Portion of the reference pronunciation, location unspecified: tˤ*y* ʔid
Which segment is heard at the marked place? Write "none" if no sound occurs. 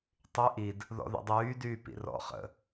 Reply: y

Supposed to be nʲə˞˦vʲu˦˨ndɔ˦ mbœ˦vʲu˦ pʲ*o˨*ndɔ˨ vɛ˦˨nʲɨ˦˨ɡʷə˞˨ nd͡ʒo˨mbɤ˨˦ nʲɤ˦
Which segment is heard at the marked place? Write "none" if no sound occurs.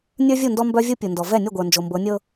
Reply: u˨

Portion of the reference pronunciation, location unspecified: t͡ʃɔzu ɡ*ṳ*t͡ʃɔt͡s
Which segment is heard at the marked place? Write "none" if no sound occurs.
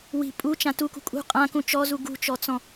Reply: ṳ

